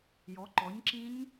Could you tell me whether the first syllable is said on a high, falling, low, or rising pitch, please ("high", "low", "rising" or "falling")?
rising